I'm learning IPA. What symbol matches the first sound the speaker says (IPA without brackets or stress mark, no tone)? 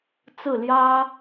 t͡s